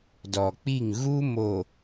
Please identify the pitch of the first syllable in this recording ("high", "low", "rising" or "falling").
low